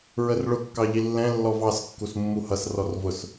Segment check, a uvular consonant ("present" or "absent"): absent